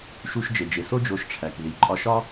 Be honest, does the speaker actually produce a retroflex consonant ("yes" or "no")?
yes